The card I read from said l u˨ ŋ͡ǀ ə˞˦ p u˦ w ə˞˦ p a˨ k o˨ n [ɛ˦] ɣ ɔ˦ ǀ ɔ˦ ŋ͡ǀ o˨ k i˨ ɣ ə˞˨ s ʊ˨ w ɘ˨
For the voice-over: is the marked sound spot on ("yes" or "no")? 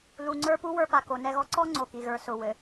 yes